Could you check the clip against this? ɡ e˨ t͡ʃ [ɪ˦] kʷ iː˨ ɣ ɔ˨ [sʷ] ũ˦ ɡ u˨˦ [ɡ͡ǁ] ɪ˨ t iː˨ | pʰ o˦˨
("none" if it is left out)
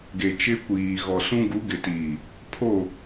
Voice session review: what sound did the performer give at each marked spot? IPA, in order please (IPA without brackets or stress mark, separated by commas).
ɪ˦, s, ɡ